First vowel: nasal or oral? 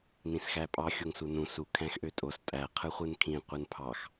nasal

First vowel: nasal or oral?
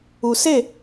oral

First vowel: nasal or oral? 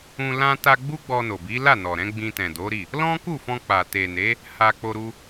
nasal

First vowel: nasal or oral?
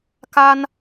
oral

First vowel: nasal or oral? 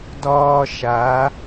oral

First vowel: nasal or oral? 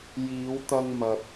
oral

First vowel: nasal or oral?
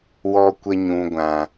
oral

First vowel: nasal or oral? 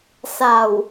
oral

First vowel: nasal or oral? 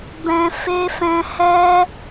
nasal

